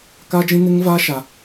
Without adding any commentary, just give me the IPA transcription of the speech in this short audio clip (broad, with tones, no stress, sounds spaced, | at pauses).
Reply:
k a˦ d͡ʒ ĩ˦ n ɪ˦ ŋ v aː˦ ʃ a˦